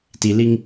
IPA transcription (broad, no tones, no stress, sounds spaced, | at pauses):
t i l i ŋ